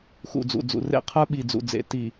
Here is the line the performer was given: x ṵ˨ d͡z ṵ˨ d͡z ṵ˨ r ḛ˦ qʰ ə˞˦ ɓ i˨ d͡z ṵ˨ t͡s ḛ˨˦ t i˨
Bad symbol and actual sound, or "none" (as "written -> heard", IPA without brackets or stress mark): t͡s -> d͡z